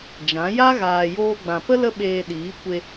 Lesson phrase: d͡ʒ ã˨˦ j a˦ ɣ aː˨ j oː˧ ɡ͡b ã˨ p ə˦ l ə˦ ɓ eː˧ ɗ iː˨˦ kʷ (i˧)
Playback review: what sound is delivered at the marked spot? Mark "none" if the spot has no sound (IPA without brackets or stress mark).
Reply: e˧